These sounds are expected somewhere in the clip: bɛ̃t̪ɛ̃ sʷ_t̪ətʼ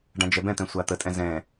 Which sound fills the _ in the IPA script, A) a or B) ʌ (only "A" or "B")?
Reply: A